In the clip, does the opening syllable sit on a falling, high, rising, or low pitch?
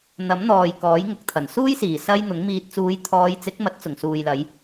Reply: rising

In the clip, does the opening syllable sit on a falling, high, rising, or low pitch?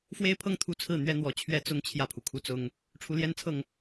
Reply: high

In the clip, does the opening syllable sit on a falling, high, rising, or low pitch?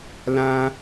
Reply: high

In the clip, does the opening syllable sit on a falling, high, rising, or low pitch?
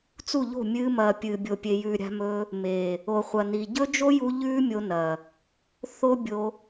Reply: falling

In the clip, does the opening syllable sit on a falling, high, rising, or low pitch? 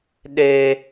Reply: high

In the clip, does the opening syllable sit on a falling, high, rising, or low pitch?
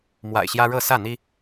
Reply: low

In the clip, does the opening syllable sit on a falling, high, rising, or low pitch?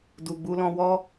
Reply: low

